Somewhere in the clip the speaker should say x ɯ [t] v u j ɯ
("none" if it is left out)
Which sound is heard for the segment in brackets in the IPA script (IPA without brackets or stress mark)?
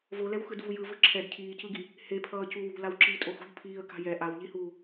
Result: d